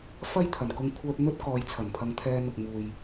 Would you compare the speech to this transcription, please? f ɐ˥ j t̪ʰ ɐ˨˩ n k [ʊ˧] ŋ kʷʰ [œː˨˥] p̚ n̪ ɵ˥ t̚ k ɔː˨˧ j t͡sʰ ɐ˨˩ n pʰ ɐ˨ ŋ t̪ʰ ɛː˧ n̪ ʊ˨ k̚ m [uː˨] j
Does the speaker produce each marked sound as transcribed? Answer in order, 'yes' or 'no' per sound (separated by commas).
yes, no, yes